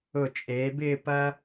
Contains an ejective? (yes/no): yes